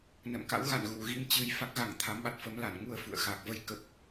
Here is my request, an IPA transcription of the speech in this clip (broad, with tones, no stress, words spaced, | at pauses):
nə̰˧˨mka̰˧˥w ɣa̰˧˨n ɣu˧˩ɣi˧mt͡ɕɨ˧j fa˦˥k̚ɣa˧˩ŋ t̪ʰa˨˦mɓa˨˩t̚fə˨˦mla˧˩n ŋu˧ə̯fṵ˧˨ə̯ xa˨˩k̚və˧j kə˦˥p̚